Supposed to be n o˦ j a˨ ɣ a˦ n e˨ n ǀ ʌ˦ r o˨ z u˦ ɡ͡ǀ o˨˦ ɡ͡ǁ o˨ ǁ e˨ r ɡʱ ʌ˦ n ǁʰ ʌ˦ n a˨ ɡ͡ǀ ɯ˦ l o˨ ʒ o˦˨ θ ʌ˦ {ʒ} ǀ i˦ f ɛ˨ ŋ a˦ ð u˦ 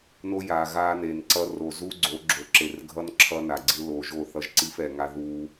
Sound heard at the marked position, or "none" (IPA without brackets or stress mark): ʒ